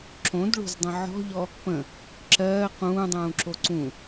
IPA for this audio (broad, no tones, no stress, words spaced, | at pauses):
ǁõdɭo̤zdˤə̃ ʕɔ̤ʎɔ | pə̃ | ǁɜː qũːdˤũːǁo ǀũ